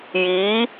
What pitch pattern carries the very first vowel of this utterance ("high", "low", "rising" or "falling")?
rising